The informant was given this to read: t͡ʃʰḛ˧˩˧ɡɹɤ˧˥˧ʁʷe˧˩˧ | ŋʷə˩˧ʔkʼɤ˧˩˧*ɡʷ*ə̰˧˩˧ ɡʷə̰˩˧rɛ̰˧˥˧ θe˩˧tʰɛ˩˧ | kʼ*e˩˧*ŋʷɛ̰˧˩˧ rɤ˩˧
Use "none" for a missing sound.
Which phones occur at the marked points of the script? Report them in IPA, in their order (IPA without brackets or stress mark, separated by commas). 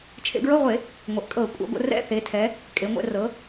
kʷʼ, e˩˧